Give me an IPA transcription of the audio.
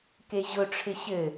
k e ʑ ʊ ʈ͡ʂʰ ɪ ɕ ɘ

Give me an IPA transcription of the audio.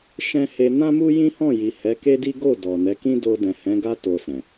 ʃ ɛ̃˦ h e˧ n ã˦ m u˦ j ĩ˦ h ɔ̃˦˨ j i˨ h ɛ˨˦ k e˦ d i˦ ɡ o˦˨ d ɔ˨ n ɛ˨˦ k ĩ˦ d o˧ d ɛ̃˨ h ɛ̃˨˦ ɡ a˦ t o˧ s ɛ̃˨

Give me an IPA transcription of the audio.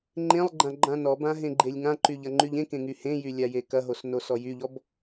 ŋ͡ǃ ẽ lˠ ɡ͡ǃ ã ɡ͡ǃ ã n ɔ b ã ɦ ẽ ɡ͡ǃ e lʲ ŋ ã ǃ y ʎ ɐ ŋ͡ǃ y ʎ ẽ k ẽ ŋ y h ẽ j y lʲ a j e k ɐ ɦ o s n o s ɔ j y ʎ ɔ b

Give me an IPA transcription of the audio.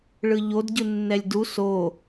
ɭ ɯ ʎ o d ɟ ɯ nː ɛ lʲ d u s o

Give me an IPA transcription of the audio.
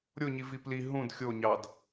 ɾʲ o ɲ i v i p l i ɦ ũ d xʲ o ɲ ɑ d

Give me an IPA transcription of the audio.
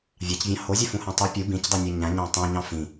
vʲ ɑ c vʲ ɑ̃ h o zʲ ø f ũ h æ̃ tˤ ɯ pʲ u b ĩ c dˤ y nʲ æ ɲ æ̃ ɲ ɑ̃ tˤ õ ɲ ɑ̃ f ĩ

